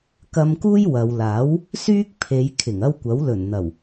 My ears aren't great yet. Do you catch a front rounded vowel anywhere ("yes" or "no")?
yes